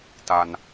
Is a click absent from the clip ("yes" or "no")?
yes